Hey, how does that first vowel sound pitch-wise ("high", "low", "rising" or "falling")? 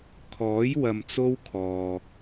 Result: rising